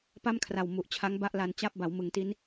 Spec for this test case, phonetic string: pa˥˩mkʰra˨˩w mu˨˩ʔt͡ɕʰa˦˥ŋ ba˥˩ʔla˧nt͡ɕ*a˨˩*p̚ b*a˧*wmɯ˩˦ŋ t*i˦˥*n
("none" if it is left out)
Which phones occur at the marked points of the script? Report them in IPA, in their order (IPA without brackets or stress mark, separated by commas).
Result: a˥˩, a˩˦, i˦˥